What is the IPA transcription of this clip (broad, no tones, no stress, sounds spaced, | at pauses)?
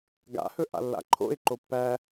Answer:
ɡ a̰ h ɵ ʔ a̰ lː a̰ ǃʰ o̰ ɪ̯ ǃ o pː æ